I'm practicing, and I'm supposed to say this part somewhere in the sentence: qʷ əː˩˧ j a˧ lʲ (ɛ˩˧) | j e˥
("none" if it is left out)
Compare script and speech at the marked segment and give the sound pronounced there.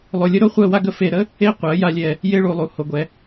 ɛ˧˩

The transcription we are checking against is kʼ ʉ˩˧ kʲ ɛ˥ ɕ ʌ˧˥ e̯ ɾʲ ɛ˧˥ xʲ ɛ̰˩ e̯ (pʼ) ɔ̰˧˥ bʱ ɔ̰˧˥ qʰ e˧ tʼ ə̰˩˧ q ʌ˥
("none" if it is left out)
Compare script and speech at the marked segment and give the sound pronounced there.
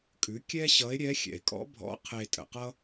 kʼ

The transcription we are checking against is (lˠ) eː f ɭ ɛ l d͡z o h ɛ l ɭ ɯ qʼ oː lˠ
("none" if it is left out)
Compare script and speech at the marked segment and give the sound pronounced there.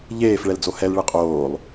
ʎ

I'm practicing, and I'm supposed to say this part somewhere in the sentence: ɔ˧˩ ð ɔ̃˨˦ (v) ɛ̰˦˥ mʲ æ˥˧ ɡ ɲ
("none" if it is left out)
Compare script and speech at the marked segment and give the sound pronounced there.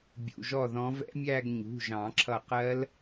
v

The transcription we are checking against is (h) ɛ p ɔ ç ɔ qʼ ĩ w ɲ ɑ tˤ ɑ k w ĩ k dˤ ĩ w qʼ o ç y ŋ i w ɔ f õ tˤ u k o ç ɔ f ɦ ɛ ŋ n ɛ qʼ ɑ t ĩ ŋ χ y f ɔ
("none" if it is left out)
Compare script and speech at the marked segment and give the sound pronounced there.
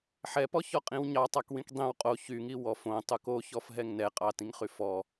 ħ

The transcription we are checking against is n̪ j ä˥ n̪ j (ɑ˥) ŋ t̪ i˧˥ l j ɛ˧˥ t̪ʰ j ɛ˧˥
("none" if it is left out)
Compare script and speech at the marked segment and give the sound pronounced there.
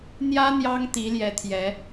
ɑ˥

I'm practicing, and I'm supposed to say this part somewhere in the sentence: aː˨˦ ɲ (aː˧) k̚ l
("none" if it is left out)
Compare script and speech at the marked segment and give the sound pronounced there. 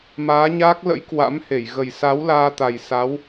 aː˦˥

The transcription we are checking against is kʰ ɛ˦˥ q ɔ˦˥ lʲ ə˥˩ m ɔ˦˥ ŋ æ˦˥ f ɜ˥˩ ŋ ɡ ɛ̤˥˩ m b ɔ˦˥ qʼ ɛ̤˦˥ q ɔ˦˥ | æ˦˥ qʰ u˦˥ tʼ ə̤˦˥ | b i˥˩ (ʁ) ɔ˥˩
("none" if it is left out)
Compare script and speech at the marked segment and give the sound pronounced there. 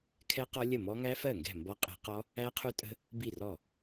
r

